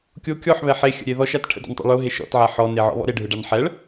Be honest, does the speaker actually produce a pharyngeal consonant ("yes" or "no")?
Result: yes